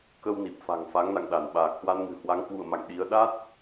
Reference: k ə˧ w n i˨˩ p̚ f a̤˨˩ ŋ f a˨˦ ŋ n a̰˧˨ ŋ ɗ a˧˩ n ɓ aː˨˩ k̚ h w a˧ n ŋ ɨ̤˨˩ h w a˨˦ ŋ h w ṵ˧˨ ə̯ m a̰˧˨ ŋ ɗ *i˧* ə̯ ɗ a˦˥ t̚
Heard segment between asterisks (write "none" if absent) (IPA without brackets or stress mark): i˨˦